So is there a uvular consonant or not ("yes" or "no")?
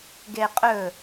yes